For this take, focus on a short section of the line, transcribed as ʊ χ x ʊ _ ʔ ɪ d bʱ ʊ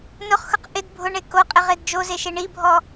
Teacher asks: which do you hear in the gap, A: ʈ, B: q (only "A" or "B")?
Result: B